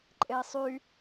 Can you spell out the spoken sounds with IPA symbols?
ǃʼei̯sˤy

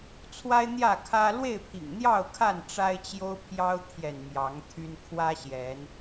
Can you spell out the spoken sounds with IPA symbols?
t͡sʰwa˦ɪ̯n̪jä˥˨kʰä˦ lwe˥˨ɪ̯pʰḭ˨˩ŋn̪jɑ˥˨ʊ̯kʰa˥˨n ʈ͡ʂa˦ɪ̯t͡ɕjo˦ʊ̯pʰjɑ˦ʊ̯t̪ʰjɛ˨n mjɑ˨˦ŋ t̪ʰy˦n kʰwä˦ ɕjɛ˨˦n

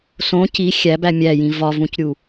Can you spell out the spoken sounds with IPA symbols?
sõ ci xʲæbæ mʲæjĩ vɒvũcɾʲu

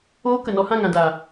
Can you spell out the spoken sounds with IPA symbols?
oː˦kə˨ nɔ˧hã˦˨ŋã˨daː˨

